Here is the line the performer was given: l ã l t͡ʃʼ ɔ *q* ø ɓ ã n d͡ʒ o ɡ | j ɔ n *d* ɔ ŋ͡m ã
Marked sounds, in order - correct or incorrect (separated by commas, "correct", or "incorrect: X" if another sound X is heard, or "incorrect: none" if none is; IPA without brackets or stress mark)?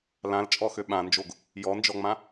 incorrect: x, incorrect: d͡ʒ